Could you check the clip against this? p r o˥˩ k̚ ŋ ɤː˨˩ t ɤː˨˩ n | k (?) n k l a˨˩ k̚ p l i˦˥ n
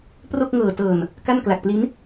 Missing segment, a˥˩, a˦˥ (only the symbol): a˥˩